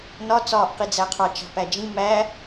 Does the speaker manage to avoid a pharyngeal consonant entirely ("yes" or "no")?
yes